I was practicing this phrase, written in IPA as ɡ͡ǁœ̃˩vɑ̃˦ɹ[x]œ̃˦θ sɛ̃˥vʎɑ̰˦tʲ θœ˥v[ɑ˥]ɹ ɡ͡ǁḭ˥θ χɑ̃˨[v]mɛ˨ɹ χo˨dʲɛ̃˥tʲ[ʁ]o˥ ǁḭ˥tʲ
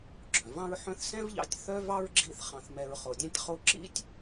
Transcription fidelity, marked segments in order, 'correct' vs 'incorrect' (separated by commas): incorrect, correct, incorrect, incorrect